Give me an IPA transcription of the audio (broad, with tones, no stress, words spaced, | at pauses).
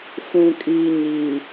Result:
fũ˨kʼiː˨ ɲi˨